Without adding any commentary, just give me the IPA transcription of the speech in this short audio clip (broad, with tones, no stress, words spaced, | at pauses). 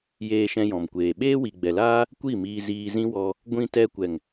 jeː˧ʃɛ̃˧jɔ̃˨mkʷeː˨ ɓeː˦wi˨ɡ͡bɛ˨laː˦ | kʷi˦˨miː˧ziː˧zĩ˦ wɔ˧ | ɡʷĩ˧ tɛ˧kʷɛ˨ŋ